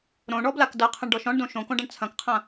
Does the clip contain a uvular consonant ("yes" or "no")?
yes